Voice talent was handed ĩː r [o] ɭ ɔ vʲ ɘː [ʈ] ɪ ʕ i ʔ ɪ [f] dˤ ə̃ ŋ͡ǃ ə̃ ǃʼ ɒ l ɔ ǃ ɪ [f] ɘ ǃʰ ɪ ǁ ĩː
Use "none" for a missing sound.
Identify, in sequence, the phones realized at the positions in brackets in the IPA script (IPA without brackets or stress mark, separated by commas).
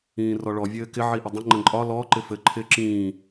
ɔ, k, none, f